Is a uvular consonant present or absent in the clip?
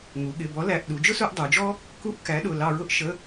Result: absent